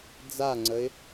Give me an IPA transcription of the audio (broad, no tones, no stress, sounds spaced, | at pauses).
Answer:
d͡z a ŋ͡ǀ ə ɪ̯